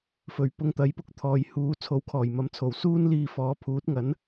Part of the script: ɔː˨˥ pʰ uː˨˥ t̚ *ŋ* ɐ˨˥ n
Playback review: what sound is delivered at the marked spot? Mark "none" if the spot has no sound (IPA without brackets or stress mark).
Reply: ŋ